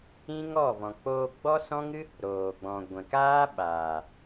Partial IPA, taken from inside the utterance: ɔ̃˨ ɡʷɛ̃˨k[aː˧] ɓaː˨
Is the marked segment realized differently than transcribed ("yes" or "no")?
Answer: yes